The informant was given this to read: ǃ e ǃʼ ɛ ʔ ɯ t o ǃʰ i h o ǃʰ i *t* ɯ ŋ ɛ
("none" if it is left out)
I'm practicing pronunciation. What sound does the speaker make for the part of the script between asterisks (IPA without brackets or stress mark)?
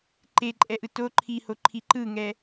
ǃ